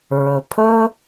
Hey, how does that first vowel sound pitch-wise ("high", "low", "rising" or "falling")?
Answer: low